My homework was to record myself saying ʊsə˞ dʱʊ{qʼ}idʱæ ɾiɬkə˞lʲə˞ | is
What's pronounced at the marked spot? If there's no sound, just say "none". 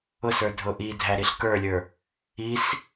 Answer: ʔ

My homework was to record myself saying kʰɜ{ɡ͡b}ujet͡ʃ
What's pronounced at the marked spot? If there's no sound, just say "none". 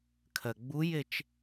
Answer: ɡ͡b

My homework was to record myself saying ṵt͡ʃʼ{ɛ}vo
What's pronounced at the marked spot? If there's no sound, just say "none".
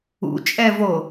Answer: ɛ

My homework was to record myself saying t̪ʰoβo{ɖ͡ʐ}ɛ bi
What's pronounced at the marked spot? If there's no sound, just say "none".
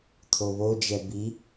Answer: d͡ʒ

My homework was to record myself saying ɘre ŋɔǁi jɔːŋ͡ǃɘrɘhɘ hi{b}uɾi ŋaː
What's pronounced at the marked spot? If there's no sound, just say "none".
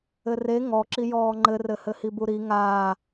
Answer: b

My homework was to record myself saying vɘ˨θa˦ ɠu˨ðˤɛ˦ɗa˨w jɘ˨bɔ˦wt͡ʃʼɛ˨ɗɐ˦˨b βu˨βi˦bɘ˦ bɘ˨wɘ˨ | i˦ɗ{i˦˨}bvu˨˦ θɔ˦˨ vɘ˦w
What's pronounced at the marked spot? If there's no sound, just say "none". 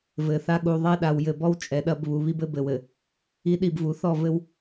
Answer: i˦˨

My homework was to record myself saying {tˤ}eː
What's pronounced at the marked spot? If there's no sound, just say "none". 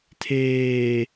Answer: tʰ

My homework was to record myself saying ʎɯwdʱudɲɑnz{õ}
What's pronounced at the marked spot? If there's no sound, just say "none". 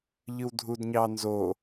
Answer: o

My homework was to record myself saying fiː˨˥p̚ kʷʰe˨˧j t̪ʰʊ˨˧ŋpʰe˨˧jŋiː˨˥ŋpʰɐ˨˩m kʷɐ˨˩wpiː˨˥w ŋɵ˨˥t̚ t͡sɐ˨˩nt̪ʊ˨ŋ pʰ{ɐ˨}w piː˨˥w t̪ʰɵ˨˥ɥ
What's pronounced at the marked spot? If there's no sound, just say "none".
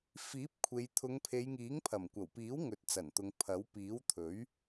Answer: ɐ˨˥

